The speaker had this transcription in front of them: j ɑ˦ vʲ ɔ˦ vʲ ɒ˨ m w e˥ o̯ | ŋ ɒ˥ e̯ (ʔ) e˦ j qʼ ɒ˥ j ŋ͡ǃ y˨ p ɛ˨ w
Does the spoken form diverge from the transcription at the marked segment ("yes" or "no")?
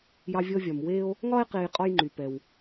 yes